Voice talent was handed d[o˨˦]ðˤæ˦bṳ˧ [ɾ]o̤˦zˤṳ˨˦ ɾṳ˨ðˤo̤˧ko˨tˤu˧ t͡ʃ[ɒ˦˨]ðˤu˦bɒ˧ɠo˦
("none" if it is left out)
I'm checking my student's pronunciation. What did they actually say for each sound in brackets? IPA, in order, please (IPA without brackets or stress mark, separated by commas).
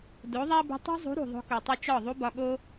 o˨˦, tˤ, ɒ˦˨